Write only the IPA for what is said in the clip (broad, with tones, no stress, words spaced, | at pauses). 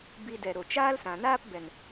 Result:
bi˧ dɛ˨ɾo˨ t͡ʃaː˦lsã˨ naː˦pbɛ˨n